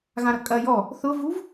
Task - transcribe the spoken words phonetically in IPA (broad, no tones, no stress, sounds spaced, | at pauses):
ɣ ã ɾ ɐ kʼ ɐ j ɔ | θ ʊ v u v